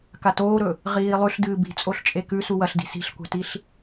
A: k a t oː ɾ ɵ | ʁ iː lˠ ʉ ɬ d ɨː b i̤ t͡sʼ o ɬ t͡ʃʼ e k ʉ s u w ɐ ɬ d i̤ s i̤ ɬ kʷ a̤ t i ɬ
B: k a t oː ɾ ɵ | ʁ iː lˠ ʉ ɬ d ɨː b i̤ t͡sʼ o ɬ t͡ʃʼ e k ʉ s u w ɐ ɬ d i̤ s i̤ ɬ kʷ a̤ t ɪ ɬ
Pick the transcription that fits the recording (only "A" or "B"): A